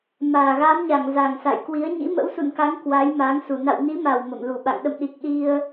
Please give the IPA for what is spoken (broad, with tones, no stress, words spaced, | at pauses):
maː˨˩ɣaː˨˦mɲa˧˩ŋ za˨˩ŋsa̰˧˨jkwi˨˦ə̯ ɲḭ˧˥mə̰˧˥wsṵ˧˨nka˨˦ŋ kwa˨˦jma˨˦ŋsu˧˩ na̰˧˨wni˨˦ma˨˩w mə̰˧˨mlu˧˩ɓa̰˧˨ŋ ɗə̰˧˨mɗi˨˩k̚ ɗi˧ə̯